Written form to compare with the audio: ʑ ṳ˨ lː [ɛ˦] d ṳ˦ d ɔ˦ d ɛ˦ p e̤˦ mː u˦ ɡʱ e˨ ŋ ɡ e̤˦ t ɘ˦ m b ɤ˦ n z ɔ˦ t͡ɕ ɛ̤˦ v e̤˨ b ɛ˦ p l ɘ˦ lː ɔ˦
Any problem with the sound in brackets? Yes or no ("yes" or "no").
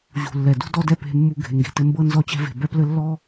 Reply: yes